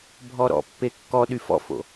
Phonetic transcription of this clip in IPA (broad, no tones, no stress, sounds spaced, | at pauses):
bʱ ɔ ɾ ɔ̰ pː e kː ɔ ɗ y f ɔ̰ f o̰